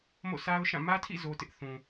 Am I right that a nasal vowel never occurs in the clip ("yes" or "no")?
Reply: no